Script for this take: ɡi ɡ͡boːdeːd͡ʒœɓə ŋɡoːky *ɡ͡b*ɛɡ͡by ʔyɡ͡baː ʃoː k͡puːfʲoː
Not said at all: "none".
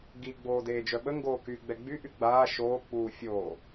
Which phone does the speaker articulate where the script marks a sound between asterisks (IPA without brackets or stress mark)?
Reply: ɡ͡b